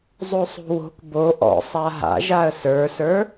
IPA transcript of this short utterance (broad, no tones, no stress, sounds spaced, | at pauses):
zˤ o sˤ o̤ w o̤ k b o ʔ ɔ̰ sˤ a ɦ a̰ ʒ a ə̯ s ə˞ s ə˞